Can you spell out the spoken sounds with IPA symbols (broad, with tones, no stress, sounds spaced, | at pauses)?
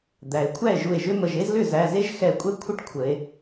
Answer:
d̪ æ˩˧ e̯ kʷʰ æ˥˩ e̯ ʒ u˧˩ e̯ ʒ ʏ˥ m ə˧˩ ʒ e˥ z l ʏ˥˩ z æ˩˧˩ z e˥ ʒ x ɛ˧˩ kʷʼ ɛ˥ kʷʰ ə˥ ʈ kʷʰ ə˩˧ e̯